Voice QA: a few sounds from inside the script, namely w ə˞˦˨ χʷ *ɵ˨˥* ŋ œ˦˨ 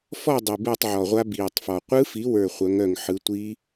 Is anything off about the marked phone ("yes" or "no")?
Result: yes